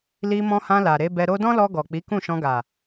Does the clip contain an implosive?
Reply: no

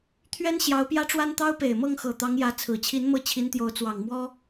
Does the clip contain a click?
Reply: no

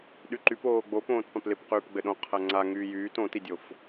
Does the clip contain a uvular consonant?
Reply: yes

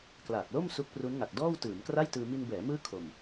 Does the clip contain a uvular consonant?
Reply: no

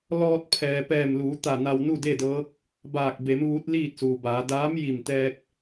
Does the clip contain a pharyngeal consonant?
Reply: no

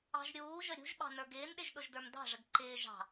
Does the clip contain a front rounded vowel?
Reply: no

